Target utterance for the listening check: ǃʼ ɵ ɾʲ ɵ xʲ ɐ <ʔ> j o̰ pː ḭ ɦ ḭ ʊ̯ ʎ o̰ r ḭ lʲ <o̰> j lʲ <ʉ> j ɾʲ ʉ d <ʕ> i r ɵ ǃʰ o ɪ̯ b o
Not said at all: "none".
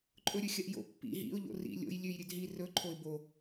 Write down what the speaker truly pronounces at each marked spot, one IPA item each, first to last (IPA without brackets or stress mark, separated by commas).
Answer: ʔ, o̰, ʉ, ɦ